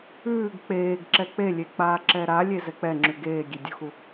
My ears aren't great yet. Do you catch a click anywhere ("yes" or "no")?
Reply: yes